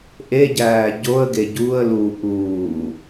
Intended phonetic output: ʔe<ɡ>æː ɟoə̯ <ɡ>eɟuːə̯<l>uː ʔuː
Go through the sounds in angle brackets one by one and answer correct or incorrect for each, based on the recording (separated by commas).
incorrect, correct, correct